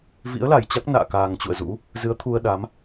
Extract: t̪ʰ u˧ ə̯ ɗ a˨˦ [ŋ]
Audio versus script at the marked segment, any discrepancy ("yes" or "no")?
yes